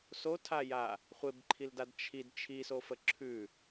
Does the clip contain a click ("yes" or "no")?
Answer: yes